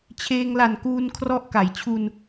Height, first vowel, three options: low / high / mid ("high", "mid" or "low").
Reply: mid